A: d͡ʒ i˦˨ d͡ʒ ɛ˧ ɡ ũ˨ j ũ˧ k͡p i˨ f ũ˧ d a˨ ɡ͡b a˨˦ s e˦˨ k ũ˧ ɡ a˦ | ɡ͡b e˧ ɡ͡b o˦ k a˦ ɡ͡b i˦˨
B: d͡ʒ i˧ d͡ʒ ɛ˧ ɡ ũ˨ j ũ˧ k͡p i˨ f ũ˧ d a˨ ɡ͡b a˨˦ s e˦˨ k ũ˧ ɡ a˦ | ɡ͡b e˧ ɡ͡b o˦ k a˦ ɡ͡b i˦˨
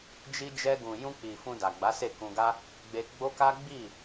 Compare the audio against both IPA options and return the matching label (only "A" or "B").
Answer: B